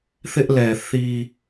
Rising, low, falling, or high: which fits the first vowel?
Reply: high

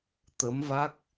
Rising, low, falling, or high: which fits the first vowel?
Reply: rising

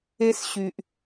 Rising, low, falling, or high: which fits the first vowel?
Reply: high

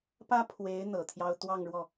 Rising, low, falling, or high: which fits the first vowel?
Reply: high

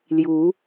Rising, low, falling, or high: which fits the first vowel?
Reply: rising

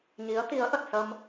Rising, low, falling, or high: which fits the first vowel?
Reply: rising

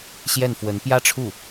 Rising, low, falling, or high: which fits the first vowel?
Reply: falling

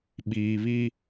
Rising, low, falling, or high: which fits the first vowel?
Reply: low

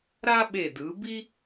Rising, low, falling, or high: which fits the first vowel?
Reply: high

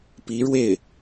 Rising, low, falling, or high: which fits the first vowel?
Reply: rising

